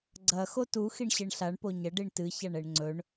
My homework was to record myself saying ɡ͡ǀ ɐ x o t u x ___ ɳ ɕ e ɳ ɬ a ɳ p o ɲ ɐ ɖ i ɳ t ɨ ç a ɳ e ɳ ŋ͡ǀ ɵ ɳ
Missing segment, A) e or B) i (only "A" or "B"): B